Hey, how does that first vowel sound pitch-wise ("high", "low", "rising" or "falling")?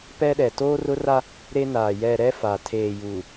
high